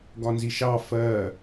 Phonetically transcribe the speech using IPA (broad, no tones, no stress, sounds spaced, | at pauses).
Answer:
ɡ ɒ n z i ʃ ɑ f ɜ